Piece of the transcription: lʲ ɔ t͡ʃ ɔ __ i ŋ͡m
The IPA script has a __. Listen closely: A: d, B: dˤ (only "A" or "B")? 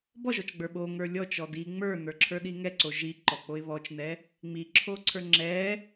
A